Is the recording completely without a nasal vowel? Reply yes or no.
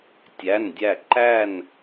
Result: yes